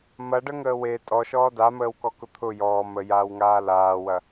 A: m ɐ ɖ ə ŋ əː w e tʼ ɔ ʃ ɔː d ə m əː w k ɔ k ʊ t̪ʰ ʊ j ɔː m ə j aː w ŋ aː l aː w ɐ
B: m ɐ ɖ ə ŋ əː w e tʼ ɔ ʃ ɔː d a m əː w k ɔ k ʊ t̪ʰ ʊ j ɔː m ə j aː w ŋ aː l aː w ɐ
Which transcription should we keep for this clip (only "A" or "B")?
B